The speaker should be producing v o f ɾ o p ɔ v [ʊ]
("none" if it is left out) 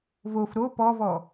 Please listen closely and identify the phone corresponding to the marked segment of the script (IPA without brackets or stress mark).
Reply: ɔ